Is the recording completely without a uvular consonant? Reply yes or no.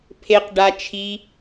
no